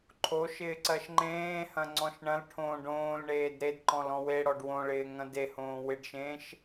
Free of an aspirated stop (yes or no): no